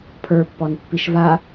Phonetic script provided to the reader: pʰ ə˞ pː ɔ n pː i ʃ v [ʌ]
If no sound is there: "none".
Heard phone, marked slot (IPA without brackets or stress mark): a